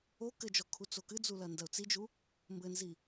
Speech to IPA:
o k ɘ d͡ʒ ɔ kʰ u t͡s o k ɨ d͡z u l ɐ n d ɐ ʊ̯ t͡s i d͡ʒ u | m b ɘ n z i

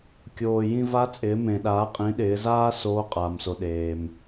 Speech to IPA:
kʲ oː˩ j ĩ˧ v a˧˥ t͡sʼ ɪː˩˧ m ẽ˩ ɗ aː˩˧ qʼ ĩ˩˧ ɗ ɪː˩˧ z aː˥ s oː˧˥ qʼ aː˩ m s o˩ ɗ eː˩ m

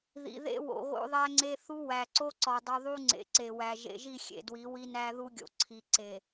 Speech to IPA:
ð ḭ˨ ð ḛ˦ w o̰˨ ɣ o̰˦ ðˤ æ˦ ŋ͡ǀ e˦ θ u˦ w æ˨ ǀ o˦ ǀ ɒ˨ dˤ u˨ ðˤ u˦ ŋ͡ǀ ḛ˨ ǀ e˨ w æ˨ ʒ ḛ˨ ʒ i˦˨ xʲ ḛ˨ d w i˨˦ w i˦ n æ˦ ð u˦ ɡʲ o̰˨ ǀʰ i˨ ǀ e˨

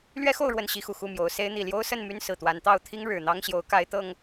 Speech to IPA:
l ɥ ɛ˦ x o˥˨ ʊ̯ ɻ w ə˥˨ n ɕ i˦ x u˨˩ x u˥˨ m j o˨˦ ʊ̯ s e˨˦ ɪ̯ n̪ i˨˩ l j o˦ ʊ̯ s ə˥˨ n m y˦ n s ɹ̩˨˩ t̪ w a˨˦ n t̪ ɑ˥˨ ʊ̯ t̪ʰ i˦ ŋ ɻ ɻ̩˨˩ n̪ ɑ˦ ŋ ɕ j o˨˦ ʊ̯ k a˨˦ ɪ̯ t̪ ɤ˨˩ ŋ

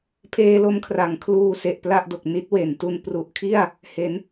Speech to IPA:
pʰ eː˧ l o˧ m kʰ r a˩˦ ŋ kʰ l uː˧ s e˨˩ ʔ p l a˥˩ ʔ d o˨˩ k̚ n i˦˥ t̚ w e˩˦ n t u˧ n p r u˨˩ ʔ kʰ i˥˩ a̯ | h e˩˦ n

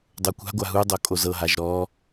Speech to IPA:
dˤ o kʷ a̤ ɡʷ a ɦ u dˤ o kʼ o z ɤ ɦ a ʒ ɾ ɔ

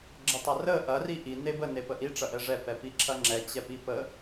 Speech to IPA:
ɡ͡ǁ ə tˤ ɐ r ə ʔ ɐ r i ʔ i n e b ə n e p ə ʔ i ʈ͡ʂ ɐ ʔ ɛ ʐ ɛ p ɛ p i ǁʰ ɐ ŋ͡ǁ ɛ t͡ɕ ɛ p i p ə

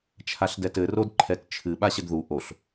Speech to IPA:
t͡ʃʰ a ɬ d ɛ t ɘ r o d ǃʰ ɛ t t͡ʃʰ ɨ ɓ a ɕ ɘ d ð u ʔ o ɬ

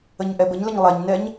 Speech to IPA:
ə ɲ ʔ ɛ b ə ɲ l ə ɲ lˠ ɛ ɲ n ɛ ɲ

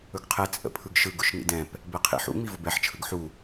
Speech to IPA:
ɵ ɡ qʰ ɛ t͡sʼ ə̰ pʰ ɯ ɡ ʃ ɯ ɡ ʊ ʃ n ḭ d ɛ̃ p | b ɛ qʰ ḭ ħ ṵ ŋ͡m i v ʊ b ɛ ħ t͡ʃʰ ɯ ɡ ħ u

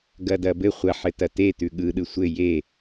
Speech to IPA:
ɡ ɐ d ɐ b ɘ χʷ ɐ ħ ɘ t ɐ t e t ʉ ɠ ɯ ɗ ɯ sʷ ɘ j e

